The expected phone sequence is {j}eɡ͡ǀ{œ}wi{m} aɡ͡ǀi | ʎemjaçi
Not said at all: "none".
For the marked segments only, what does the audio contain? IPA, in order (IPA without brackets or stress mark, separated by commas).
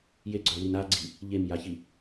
j, œ, n